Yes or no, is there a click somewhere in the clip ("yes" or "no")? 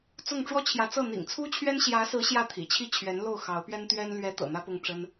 no